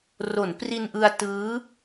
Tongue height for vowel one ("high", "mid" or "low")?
mid